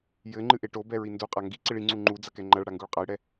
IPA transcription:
j ɘ ŋ͡ǃ ɨ ʔ e ʈ o b ɛ ɹ i n d u qʼ a ŋ ɡ i ǀ i ɭ i ŋ͡ǀ u ŋ͡ǃ u d͡z ɐ k ɛ ŋ͡ǃ ɐ ɭ ɽ a ŋ ɡ u ɭ qʼ a j ɽ ɛ

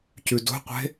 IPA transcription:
c ʉ d o̤ qʷ e̤

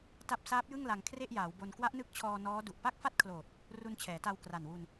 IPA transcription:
t a˦˥ p̚ s aː˦˥ p̚ j ɯ˥˩ ŋ l a˧ ŋ kʰ r e˥˩ ʔ j aː˩˦ w b o˧ n k w a˦˥ ʔ n ɯ˦˥ k̚ t͡ɕʰ ɔː˧ n ɔː˦˥ d u˨˩ ʔ p a˥˩ k̚ f a˥˩ t̚ kʰ l oː˨˩ t̚ | r u˧ n t͡ɕʰ ɛː˩˦ t a˧ w k r a˨˩ n w u˧ n

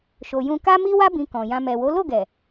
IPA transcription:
ʃ o˧ j ũ˦ k a˦ m i˦ w a˦ b ĩ˧ k ɔ̃˨ j ã˧ m ɛ˨ w o˨˦ l o˦˨ ɡ ɛ˨

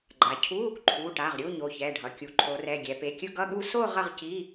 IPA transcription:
ɡ͡ǃ a˩˧ cʰ u˧˥˧ | ǃʰ u˩˧˩ ʈ a˩˧˩ ʁ ɾʲ u˧˥˧ ɲ o˩˧˩ ç ɛ˩˧˩ ɖʱ ʌ˩˧ kʲ u˩˧ ǃʰ o˩˧ r ɛ˩˧˩ ɡʲ ɛ˩˧ p e˩˧˩ kʲ ɯ˥˧ ɡ ʌ˧˥˧ ɠ u˥˧ s o˥˧ ʁ ʌ˥˧ ʁ c i˧˥˧

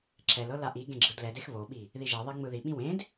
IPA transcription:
ǁ ɛ l ɤ l a ʔ i ɡ ẽ ɡ͡ǁ ɯ d l ɛ d e x β o ɓ i | ð i ʒ e ðˤ e ŋ͡m ɯ ð i ɓ ĩ w ẽ d

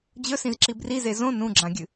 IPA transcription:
d͡ʑ ɵ s ĩ z ǁ i b r i z e z õ n ũ ɡ͡ǁ ã ɡʲ ɨ

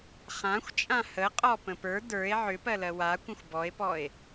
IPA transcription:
χ ã xʷ t͡ʃʼ ã h ə qʼ ɔ p ə̃ p ə˞ d ə˞ e̯ ʕ ʏ p ɜ l ɜ w a kʷ ə̃ xʷ b ɔ e̯ p ɔ e̯

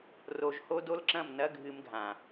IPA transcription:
r o˨ ʒ h o˦ d o˦ l ǁ ɐ̃˦˨ m n ɐ˦ ɡʱ ɨ˦ m ɡʱ ã˨

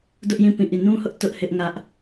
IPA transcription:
d ʊ˦ ʔ j ĩ˦˨ p ĩ˦˨ ʔ i˦˨ n ũ˦ h ʊ˦ ʔ t ʊ˦ ʔ h ɪ˦ ʔ ŋ ä˦ ʔ

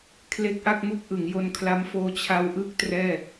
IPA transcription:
kʰ l e˦˥ k̚ ʔ a˥˩ k̚ m u˥˩ k̚ ʔ ɯ˩˦ ŋ j o˧ n kʰ l a˦˥ m f oː˦˥ t͡ɕʰ a˦˥ w ʔ ɯ˦˥ k̚ t r ɛː˥˩

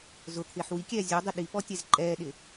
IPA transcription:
z ʊ t̪ʰ ɪː ħ w i kʲ ɛː zʲ o dˤ ɪ ɗ i p ɔ tʲ ɛ z ǃʼ ɛː ɗ ɪ

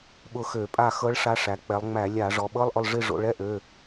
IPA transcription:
ɓ ʊ˦˨ x ø˧˩˧ pʼ a˦˨ x ɤ˧˥ ɭ ʂ a˧˥ ʂ æ˩˧ k͡p ɛ˩˧ lˠ ŋ͡m æ˧˩˧ lʲ a˧˩˧ ʐ ɔ˩˧ ɓ ɤ˧˥˧ lˠ ʔ ʊ˦˨ lˠ ʐ i˦˨ ʐ o̰˩˧ ɭ ɛ˧˥˧ ʔ ø˩˧˩

